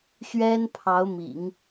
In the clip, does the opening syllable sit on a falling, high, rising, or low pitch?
high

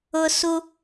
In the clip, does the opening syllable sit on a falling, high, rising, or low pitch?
high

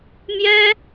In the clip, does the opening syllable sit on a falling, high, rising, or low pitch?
high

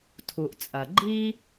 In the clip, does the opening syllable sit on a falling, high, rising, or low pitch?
low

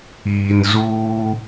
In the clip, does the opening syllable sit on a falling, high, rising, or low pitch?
low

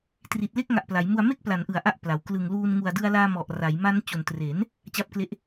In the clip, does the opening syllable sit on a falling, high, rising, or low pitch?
low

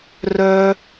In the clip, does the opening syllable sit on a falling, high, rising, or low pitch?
high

